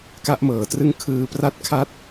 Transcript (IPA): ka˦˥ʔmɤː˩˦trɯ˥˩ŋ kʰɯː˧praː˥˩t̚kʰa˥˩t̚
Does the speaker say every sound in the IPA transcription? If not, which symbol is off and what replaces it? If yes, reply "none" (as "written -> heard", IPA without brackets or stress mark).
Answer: aː˥˩ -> a˥˩